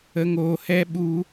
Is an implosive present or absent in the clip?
present